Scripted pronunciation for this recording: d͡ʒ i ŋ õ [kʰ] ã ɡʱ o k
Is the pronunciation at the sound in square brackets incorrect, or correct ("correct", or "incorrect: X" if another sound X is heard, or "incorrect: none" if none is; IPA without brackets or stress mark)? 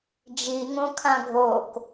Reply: correct